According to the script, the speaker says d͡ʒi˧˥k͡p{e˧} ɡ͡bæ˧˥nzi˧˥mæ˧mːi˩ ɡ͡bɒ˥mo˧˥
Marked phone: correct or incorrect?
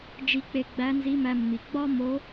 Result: correct